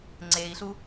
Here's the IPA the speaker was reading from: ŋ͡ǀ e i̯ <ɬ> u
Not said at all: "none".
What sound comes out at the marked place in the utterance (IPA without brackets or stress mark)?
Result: ɬ